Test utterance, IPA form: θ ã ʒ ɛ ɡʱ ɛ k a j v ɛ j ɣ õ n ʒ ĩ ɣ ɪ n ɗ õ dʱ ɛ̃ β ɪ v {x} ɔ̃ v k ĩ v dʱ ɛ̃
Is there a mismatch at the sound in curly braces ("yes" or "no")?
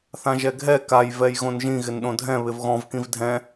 yes